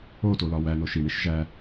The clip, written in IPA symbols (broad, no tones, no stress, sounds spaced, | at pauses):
o t o l ɒ w æ n o ʃ i ɳ i ʃ ʒ æ